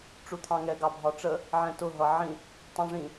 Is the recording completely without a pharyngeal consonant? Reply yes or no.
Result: no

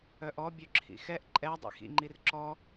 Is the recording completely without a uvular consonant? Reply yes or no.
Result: yes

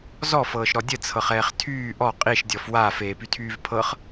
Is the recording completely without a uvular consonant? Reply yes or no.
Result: no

